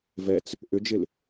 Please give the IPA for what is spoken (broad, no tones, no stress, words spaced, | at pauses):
vɛt͡s | ʔʏd͡ʒɪl